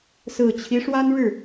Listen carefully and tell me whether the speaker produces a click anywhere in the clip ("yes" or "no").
no